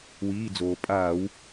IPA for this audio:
w iː˩˧˩ d͡z oː˩ pʼ aː˧˩˧ w

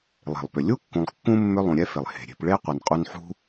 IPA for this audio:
lˠ e̤˩ lˠ p ʏ˩ lʲ u˥ kː ũ˨ lˠ kː ũ˥ mː ʏ˦ lˠ ũ˨ ɾʲ ɛ˥ f e˩ lˠ h e̤˩ ɾʲ e̤˨ p ɭ e˥ qʷ ɛ˨ n qʼ u˦ n ħ ṳ˥

